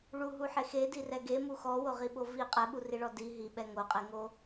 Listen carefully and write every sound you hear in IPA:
ɭ u ɦ u ħ e x e d i r ɛ ɡ e m u x ɔ w o ʁ i ɓ o v i qʼ ɛ ɓ u r i ɭ ɔ d i ɦ i ɓ ɛ ŋ o qʼ e ŋ o

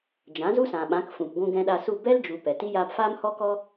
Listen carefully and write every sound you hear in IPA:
d͡ʒ ã˨˦ z u˦ s ã˨ ɓ ã˨˦ k f ũ˨ p ɡʷ ũ˧ ɡ ɛ̃˧ ɗ a˧ s u˦˨ b ɛ˦ l d͡ʒ u˨ p ɛ˨ t i˦ j aː˧ p f aː˦ m h ɔ˦ k ɔ˦

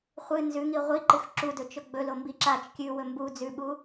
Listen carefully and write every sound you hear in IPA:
χʷ ɨ n z ʉ ŋ i ʁʷ i ǃ ɨ x ǁ u d ɵ t͡ʃ ɵ ɡ͡b ɵ l o m b i ǁ a t͡ʃ kʲ ʉ w ɵ m b u d͡z ʉ ɓ u

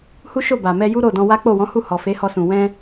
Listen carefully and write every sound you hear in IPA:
h u˦ ʃ o˦˨ b a˨ m ɛ˧ j u˦ ɾ o˦˨ d ɔ̃˧ w a˦ k͡p o˦˨ w ɔ̃˨˦ h u˦˨ h ɔ˨ f e˨˦ h ɔ˧ s ũ˨ w ɛ̃˧

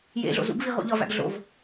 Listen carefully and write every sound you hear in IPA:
j ḛ ɮ o̰ z ṵ ɡ v i ʁ o̰ ʎ ɒ v æ̰ ɡ ɮ o̰ v

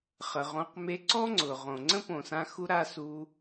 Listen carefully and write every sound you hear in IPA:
χ ə˨ ʁ õ˧ q m e˧ ǀ ɔ˦ ŋ͡ǀ ʊ˨ ʁ õ˨ ŋ͡ǀ ə̃˦ p õ˨ s ã˧ x u˧ ɾ a˧ s u˧

